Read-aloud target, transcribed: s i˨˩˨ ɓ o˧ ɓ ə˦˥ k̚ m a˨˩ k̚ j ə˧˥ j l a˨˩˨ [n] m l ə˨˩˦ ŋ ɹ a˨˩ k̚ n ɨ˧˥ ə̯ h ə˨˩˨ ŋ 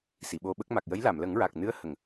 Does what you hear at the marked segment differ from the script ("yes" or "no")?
yes